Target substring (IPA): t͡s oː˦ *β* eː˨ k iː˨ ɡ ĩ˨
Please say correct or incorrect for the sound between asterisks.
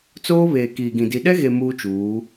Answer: correct